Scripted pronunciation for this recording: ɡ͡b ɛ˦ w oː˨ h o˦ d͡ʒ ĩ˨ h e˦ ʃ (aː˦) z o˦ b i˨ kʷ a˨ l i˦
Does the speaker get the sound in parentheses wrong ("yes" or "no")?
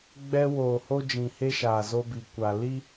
yes